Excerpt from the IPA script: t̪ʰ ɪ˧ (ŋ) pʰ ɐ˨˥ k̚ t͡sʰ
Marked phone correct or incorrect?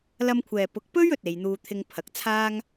correct